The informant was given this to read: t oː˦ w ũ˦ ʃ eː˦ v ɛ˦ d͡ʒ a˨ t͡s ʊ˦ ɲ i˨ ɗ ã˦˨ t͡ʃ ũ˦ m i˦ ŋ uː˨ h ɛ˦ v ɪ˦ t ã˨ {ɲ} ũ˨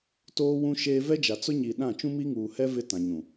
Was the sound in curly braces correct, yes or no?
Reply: yes